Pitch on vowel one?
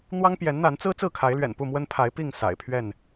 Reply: high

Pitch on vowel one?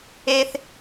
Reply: high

